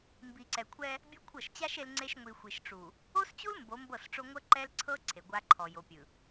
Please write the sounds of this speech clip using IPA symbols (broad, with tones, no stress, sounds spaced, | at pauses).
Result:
m b i˨ ǀ ɛ˨ kʷʰ ɛ˦ | bʲ ɤ˦ kʷʰ ɤ˦˨ ʃ t͡ɕ a˦ ʃ e˦ l ŋ͡ǀ e˦ ʃ ŋʷ i˨ xʷ i˨ ʃ ʈ͡ʂ u˨ | o˦ s t͡ɕ u˦ l m b o˨˦ m b ɤ˦˨ s ʈ͡ʂ o˦ ŋʷ ɤ˦ ǃ ɛ˦ l ǀʰ ɤ˦ ǀʰ e˨ ɡʷ a˦ ǃʰ ɔ˨ j o˨ pʲ ɯ˨